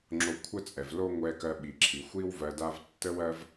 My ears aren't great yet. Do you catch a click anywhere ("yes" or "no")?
yes